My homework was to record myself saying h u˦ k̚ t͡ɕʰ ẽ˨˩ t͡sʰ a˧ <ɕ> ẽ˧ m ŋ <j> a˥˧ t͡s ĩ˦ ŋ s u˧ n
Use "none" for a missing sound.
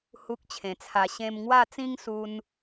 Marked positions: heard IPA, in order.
ɕ, w

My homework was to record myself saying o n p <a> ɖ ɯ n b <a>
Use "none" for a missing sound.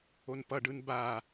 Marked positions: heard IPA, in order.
ʌ, a

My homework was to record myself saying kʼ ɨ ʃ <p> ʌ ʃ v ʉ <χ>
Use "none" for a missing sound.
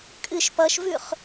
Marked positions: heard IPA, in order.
p, χ

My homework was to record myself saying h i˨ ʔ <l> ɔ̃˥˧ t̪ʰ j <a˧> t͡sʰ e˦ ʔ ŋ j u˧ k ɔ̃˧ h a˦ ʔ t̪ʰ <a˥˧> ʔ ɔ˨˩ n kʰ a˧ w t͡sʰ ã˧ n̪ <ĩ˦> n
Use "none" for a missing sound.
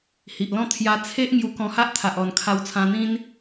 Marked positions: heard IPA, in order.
l, a˧, a˨, ĩ˦

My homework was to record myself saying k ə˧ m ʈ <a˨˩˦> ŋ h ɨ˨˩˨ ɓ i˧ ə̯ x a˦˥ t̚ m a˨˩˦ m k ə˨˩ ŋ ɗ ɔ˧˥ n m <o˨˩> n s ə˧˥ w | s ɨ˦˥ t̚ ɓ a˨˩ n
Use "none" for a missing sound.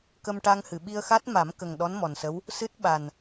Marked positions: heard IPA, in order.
a˧, ɔ˨˩

